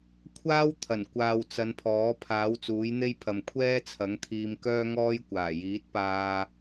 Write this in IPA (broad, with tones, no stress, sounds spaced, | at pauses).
kʷʰ aː˥ w t̪ʰ ɐ˨˩ n kʷ aː˨ w t͡s ɐ˨˧ n pʰ ɔː˨˥ pʰ aː˨˥ w t͡s uː˨˥ j n̪ e˥ j pʰ ɐ˨ m kʷʰ ɛː˥ t͡sʰ ɐ˨˥ ŋ t̪ʰ iː˧ m k œː˥ ŋ ɔː˥ j kʷ aː˨˩ j iː˨˥ t̚ p aː˧